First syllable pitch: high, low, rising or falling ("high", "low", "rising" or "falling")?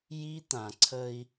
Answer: high